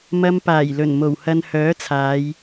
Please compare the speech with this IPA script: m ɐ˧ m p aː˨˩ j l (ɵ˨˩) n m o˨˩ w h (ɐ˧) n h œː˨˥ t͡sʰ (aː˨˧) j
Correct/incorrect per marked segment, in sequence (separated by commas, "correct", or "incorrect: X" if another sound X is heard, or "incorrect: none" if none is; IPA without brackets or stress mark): correct, correct, correct